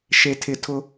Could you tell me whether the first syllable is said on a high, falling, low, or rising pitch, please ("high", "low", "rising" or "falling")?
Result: low